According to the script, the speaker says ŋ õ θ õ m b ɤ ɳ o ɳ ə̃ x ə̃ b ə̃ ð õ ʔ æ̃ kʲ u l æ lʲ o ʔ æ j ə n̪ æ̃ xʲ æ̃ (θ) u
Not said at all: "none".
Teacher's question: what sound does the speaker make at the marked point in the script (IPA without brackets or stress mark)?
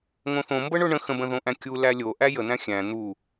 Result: n̪